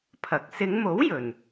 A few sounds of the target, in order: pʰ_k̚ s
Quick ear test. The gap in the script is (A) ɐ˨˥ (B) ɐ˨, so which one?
A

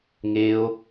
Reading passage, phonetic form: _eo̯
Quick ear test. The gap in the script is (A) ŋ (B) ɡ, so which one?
A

